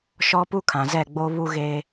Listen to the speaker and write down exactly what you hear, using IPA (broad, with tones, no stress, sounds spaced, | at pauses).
ʃ ɔ˦ p u˦ kʰ ã˨ z ɛ˦˨ ɡ͡b o˦ β u˦ ɣ e˦